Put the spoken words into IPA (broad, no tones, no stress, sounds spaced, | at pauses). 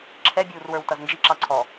ǁʰ ɛ bʲ uː r w ə˞ w t ʌ z n d͡ʒ i ǁ ɑ ǀʰ ɔ